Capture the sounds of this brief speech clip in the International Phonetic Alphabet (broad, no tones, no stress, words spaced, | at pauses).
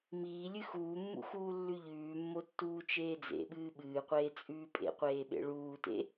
miːlʲɨ xuːmːṵ xuːlːʉʎʉːmːo tːuːt͡ʃeːd͡zḛɓɨː ɓɨːqʷeː t͡sʼʉːpʼḛqʷeː ɓḛɭuːtḛ